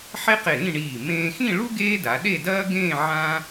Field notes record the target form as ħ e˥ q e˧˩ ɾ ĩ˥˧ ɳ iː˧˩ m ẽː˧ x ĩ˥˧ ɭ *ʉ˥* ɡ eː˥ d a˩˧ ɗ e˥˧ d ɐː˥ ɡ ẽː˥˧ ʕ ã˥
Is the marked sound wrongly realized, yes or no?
yes